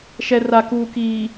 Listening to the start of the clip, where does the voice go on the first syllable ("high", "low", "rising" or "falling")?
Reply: low